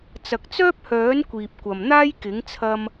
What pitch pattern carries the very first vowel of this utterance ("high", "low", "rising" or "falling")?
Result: low